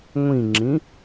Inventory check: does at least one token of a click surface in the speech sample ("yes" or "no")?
yes